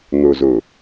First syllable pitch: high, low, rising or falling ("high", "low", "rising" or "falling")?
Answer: low